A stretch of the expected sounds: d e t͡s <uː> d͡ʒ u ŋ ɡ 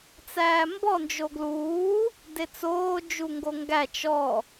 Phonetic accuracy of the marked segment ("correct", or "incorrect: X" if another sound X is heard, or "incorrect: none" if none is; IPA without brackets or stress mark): incorrect: oː